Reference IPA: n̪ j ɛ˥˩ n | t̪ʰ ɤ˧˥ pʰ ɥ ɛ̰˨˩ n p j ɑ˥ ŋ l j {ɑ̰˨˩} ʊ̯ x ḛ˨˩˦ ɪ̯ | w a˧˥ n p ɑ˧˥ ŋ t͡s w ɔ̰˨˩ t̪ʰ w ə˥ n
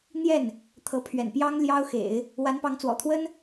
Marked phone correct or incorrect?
incorrect: ɑ˥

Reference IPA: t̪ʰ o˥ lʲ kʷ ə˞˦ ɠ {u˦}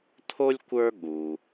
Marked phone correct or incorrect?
incorrect: u˩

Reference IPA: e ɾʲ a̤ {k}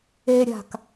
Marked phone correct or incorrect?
correct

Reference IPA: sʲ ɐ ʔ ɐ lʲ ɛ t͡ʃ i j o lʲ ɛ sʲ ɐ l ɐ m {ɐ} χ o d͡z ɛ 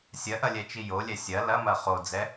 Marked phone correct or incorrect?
correct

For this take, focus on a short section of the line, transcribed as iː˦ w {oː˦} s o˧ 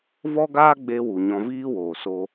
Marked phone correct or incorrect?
incorrect: oː˨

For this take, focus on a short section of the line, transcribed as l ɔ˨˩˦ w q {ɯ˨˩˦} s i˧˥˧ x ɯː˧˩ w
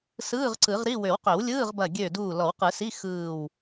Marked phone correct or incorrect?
correct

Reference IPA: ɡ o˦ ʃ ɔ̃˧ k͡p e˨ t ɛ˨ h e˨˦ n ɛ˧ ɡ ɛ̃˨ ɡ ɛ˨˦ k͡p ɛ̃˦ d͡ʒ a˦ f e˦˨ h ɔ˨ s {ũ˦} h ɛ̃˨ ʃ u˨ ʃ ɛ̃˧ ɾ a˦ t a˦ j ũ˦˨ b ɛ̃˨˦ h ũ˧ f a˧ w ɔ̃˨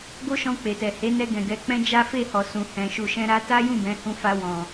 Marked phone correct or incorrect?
incorrect: ũ˨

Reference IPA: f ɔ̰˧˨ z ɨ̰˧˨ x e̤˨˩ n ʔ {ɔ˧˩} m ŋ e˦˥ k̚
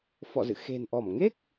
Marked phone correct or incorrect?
correct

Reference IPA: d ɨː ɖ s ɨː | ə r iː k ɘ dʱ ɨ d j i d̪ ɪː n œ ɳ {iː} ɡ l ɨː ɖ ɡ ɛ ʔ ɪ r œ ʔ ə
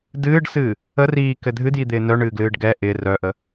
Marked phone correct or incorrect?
incorrect: ɨː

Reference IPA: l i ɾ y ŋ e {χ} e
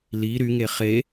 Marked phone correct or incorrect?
correct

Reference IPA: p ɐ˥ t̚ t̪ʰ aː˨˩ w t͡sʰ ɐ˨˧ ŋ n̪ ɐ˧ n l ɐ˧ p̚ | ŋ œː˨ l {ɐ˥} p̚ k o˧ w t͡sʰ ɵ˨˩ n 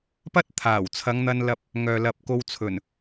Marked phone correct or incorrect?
incorrect: ɐ˨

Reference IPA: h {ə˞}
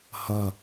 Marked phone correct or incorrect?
incorrect: ʌ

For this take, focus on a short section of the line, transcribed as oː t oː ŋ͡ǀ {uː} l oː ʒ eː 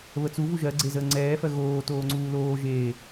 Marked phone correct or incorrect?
correct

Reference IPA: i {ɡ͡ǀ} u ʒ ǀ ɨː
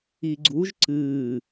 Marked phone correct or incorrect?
correct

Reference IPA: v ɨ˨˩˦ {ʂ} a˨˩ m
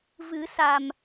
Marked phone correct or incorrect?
incorrect: s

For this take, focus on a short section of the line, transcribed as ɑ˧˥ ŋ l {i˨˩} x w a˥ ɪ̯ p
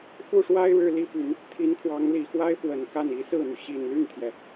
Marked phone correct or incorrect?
correct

